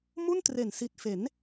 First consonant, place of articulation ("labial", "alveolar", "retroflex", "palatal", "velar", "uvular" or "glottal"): labial